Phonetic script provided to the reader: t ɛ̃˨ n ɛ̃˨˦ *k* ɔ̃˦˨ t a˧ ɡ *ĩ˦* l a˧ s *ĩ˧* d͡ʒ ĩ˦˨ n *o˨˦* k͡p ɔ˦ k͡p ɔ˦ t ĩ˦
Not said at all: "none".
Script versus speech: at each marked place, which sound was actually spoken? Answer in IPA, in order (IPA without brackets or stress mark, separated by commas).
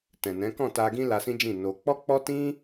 k, ĩ˦, ĩ˦, o˧